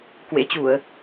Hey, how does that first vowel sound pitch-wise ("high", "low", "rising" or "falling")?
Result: rising